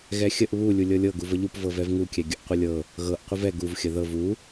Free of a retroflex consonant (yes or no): yes